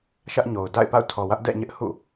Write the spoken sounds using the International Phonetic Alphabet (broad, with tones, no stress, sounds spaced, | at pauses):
ʃ ä˦ ʔ ɲ o˨ ʊ̯ d a̰˦˨ ɪ̯ p a̰˦˨ ʊ̯ tʰ ɔ˨ w ä˦ ʔ d ɛ̰˦˨ ɲ ɪ˦ ʔ h ṵ˦˨